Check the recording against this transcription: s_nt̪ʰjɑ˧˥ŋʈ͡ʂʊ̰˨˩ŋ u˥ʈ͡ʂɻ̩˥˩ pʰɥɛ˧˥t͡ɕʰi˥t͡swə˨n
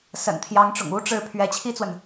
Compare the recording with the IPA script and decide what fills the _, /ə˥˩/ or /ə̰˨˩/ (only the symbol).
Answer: ə̰˨˩